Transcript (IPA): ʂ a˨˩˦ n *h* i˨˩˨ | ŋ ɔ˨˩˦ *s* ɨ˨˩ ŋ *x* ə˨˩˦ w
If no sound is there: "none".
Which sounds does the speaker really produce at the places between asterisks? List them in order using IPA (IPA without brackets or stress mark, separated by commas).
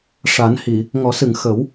h, s, x